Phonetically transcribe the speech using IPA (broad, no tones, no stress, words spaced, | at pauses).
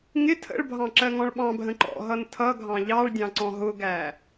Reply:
ŋɪ tʰə̰ɭbʱɑ̃ ǁɜŋɔ̃ɭɓɑ̃bʱə̃ ǃɔ̰ɦʌn tʰʌɡʱɑ̃ ʎɑɭdʲɑ̃ ǀɔ̃ɦʊɡæ